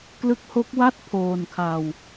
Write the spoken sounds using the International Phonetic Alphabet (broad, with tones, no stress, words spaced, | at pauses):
klɯ˦˥k̚ho˦˥k̚wa˥˩t̚ pʰoː˧nkʰa˧w